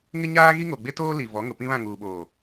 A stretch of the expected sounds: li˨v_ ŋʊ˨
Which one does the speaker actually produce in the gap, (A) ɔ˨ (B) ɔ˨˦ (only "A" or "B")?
B